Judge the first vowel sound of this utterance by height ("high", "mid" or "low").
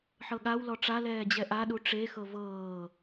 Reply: mid